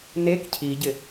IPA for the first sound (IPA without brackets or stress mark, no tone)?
n